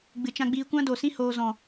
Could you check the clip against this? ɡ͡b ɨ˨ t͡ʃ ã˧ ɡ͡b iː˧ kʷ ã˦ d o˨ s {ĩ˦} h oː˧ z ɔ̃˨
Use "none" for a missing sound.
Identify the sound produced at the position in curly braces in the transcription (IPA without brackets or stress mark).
ĩ˦